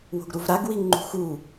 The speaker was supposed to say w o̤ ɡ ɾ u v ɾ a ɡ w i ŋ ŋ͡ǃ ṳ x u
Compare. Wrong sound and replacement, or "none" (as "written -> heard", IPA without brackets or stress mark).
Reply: none